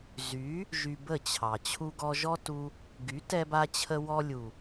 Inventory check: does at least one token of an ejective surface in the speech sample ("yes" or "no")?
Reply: no